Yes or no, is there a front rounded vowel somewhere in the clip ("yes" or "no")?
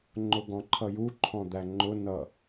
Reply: no